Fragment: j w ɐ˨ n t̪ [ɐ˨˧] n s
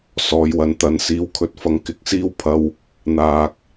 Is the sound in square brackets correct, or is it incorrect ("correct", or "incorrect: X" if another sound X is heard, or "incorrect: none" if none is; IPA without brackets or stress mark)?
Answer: correct